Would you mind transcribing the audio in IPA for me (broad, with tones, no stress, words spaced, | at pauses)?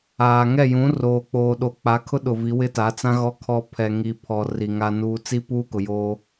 aː˨ ŋɛ˦˨ jũ˨˦roː˨ k͡poː˨ɗo˨˦k͡pa˨˦kʰʊ˦ ɗʊ˨vi˨˦ wɪ˦ta˨˦t͡sã˦ ɣɔ˦kʰɔ˦ pʰɛ˨ŋi˨pʰɔ˨ ri˨ ŋa˦nuː˦ t͡si˦puː˦kʊ˨ joː˦